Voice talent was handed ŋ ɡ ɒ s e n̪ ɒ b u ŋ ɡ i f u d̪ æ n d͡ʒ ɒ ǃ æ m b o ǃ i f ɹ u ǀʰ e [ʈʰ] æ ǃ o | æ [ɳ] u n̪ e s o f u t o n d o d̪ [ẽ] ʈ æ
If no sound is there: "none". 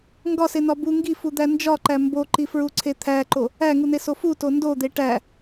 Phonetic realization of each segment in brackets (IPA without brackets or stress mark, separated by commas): t̪ʰ, ŋ, e